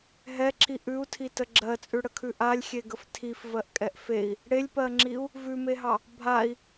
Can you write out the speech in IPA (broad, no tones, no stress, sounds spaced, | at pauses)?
ɦ ɛ ǁ i ʔ ʉ u̯ tʰ i t ə ɡ͡ǁ ɜ t͡sʼ ʉ ɽ ə kʰ ʉ ʔ a lʲ xʲ e ɡ ə f tʰ i f v ɜ ʔ kʼ ɛ ʔ f e i̯ | ɽ e lʲ p ɜ ŋ͡ǁ i u̯ | v ʉ m e ɦ ɑ | bʱ a i̯